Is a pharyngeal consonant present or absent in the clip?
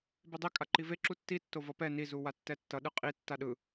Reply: absent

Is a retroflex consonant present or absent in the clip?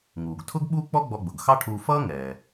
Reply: present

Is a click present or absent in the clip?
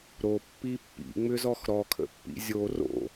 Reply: absent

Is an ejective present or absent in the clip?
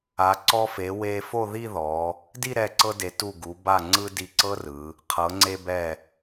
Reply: absent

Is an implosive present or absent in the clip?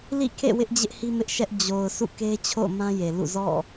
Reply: absent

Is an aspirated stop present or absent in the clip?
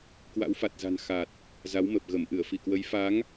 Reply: absent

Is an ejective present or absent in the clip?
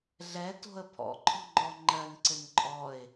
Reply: present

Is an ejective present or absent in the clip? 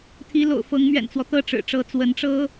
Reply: absent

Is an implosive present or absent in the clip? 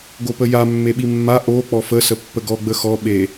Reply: present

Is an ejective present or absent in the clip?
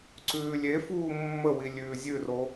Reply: absent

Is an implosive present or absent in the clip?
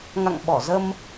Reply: present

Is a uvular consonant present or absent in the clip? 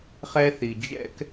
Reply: present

